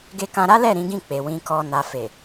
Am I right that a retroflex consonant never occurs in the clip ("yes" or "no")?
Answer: yes